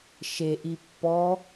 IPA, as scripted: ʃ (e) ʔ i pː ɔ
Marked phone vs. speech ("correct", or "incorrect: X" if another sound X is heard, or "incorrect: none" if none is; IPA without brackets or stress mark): correct